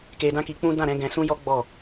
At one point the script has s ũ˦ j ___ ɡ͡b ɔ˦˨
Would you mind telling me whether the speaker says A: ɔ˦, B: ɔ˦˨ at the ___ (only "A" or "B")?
A